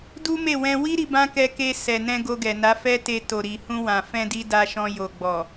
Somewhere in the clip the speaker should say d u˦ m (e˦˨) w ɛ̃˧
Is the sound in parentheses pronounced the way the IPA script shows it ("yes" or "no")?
yes